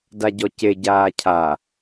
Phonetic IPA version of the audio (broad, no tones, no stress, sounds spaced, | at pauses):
d a ɟ ɔ c e ɟ aː cʰ a